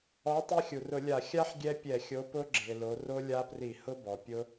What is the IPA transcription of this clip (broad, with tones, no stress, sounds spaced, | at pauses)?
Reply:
ɔ˨˥ tˤ i˦˥ xʲ u˩ r ʊ˧˩˧ lʲ a˧˩˧ xʲ a˦˥ ħ ɡʲ ɛ˦˥ pʲ ɛ˧˩˧ xʲ o˨˥ p ʊ˦˥ ɡ͡ǁ e˩ l o˩˧ r o˦˥ lʲ a˦˥ p r i˧˩˧ h ʊ˦˥ b ɔ˩ pʲ ʊ˦˥